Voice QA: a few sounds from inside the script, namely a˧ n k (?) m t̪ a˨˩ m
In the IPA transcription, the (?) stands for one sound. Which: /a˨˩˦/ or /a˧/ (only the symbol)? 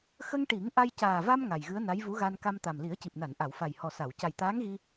a˧